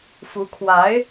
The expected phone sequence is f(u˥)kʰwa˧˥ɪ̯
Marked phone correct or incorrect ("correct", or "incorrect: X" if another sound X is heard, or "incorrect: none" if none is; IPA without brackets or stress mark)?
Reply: incorrect: u˧˥